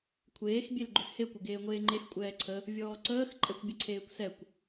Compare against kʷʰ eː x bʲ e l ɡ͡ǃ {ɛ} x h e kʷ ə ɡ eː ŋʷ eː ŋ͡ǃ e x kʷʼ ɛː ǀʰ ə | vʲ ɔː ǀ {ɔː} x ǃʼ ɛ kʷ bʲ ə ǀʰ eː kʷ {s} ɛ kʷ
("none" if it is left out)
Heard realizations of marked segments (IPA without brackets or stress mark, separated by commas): ʏ, əː, s